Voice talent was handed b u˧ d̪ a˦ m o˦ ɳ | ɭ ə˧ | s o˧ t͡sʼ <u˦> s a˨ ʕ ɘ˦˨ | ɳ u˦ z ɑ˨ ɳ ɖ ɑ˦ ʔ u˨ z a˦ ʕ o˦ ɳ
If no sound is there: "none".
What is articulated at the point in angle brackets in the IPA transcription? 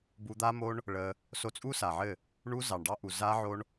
u˦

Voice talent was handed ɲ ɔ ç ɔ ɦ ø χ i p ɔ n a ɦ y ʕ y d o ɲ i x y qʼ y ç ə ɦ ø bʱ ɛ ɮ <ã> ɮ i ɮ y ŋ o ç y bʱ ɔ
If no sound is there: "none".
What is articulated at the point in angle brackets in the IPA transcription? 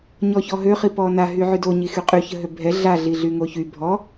a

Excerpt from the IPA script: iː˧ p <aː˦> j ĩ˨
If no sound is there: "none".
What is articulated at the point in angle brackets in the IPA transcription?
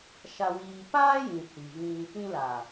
aː˦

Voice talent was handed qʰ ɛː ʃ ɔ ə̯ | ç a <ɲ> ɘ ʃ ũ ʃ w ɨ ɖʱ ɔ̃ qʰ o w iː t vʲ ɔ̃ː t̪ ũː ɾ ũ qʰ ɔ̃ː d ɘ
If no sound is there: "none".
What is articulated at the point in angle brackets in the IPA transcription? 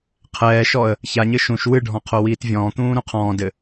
ɲ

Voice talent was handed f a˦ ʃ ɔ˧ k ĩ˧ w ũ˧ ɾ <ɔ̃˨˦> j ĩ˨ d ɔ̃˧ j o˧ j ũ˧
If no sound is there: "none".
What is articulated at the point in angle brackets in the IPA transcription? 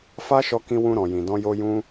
ɔ̃˨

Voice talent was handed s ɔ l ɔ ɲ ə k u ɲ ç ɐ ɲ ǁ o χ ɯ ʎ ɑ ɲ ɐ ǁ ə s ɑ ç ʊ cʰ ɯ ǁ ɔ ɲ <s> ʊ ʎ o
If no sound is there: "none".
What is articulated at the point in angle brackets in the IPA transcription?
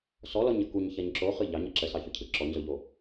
z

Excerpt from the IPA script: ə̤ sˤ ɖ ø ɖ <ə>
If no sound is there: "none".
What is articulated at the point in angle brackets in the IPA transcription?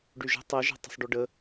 ə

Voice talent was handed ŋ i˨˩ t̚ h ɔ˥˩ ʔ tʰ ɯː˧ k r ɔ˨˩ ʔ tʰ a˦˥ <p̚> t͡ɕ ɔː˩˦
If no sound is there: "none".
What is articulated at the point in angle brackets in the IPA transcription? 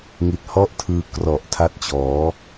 t̚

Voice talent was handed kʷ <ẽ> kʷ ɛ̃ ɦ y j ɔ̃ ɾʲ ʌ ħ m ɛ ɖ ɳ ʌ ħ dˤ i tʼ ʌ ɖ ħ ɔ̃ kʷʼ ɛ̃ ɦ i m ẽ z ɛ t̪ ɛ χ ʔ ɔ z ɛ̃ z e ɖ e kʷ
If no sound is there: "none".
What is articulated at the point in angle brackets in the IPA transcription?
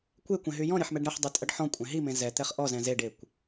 e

